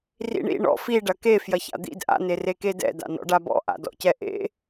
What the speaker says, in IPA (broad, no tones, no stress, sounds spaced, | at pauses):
r ḭ ɳ ḭ ɳ ɔ̰ f i ɖ ɐ k e f j ɐ ç a̰ d̪ ḭ d ʔ a̰ n e r e k e d ɛ̰ d a̰ n ɔ̰ ɖ a b ɔ̰ ʔ a̰ d ɔ̰ c ɛ ʔ ḛ